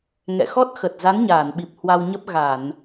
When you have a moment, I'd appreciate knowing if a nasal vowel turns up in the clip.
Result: no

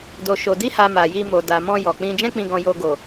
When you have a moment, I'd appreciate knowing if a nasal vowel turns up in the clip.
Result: yes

